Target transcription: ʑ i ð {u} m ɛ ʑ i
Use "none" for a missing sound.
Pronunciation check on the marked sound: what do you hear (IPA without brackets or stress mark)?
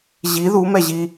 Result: u